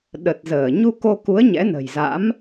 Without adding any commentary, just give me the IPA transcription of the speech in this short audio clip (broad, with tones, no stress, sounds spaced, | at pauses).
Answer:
ɗ ə˨˩ t̚ z əː˧˩ ɲ u˧ k o˧ k u˨˦ ə̯ ɲ ɛ̰˧˥ n ə̤˨˩ j z a̰˧˥ m